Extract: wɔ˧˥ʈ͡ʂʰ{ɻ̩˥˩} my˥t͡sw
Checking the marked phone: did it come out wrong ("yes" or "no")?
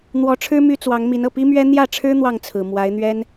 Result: yes